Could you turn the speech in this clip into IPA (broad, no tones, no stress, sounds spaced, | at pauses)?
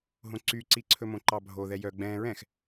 ɦ õ ǀ y ǀ i ǀʰ ɵ m õ ǃ ɑ bʱ o ð ɛ j œ ɡ͡b ɛ̃ ɹ ɛ̃ x